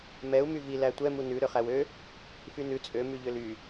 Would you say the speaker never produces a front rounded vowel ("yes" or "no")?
no